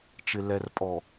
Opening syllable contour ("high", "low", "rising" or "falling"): low